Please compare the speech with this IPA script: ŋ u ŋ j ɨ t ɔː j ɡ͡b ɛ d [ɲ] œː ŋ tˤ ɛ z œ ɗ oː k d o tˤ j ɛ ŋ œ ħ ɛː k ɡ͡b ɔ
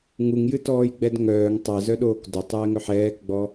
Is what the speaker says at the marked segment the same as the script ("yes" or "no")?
no